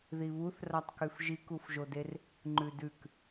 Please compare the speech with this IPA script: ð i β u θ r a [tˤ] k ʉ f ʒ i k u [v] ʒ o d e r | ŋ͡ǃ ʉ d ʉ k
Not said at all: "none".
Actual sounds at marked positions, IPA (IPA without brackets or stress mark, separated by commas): tˤ, f